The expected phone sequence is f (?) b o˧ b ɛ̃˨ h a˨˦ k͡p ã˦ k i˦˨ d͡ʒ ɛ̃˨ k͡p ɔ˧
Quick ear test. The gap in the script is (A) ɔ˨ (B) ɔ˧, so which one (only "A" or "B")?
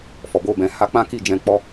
A